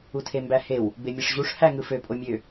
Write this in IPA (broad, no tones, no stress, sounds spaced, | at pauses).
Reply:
u tʰ e m b æ h e w | b e mʲ ɯ ʂ ʑ u ʂ h æ ŋ ɯ f ø pʼ o mʲ ø